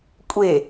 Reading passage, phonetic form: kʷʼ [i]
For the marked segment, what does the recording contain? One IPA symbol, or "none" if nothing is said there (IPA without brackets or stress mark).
e